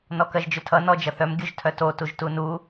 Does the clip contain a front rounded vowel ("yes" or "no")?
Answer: yes